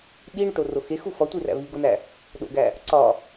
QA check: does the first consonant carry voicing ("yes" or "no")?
yes